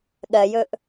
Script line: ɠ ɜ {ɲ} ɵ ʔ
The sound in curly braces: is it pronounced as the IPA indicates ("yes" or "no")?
no